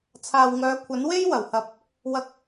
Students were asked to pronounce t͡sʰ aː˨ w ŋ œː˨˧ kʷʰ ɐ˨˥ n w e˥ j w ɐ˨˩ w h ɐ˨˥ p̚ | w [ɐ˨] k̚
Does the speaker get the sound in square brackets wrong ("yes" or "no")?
no